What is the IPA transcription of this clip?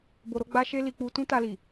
bo˧ɾo˦ɡ͡ba˦ ʃe˦li˧k͡pu˧ tũ˦ta˧li˨

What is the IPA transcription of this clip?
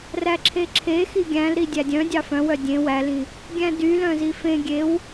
ræǁʰeǁʰe xiɡʲæ̃lɾi dʲædʲœ̃dʲɑ fœ̃wœ dʲẽ wælĩ | ɡʲæ̃dylœ̃zi fẽ ɡʲew

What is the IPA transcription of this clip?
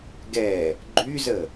ɡɛ | ɡ͡ǃyzə

